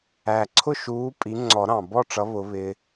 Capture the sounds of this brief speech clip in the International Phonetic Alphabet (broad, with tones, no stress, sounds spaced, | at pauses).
æ˨˩ ǀʰ ʊ˥˨ ʃ uː˨˥ pʼ i˨˥ ŋ͡ǀ ɔ˨˩˦ ɾ ɑ̃˨˩ b ɔ˥˨ ʈ͡ʂ ʌ˨˥ β ʊ˨˥ β ɪ˦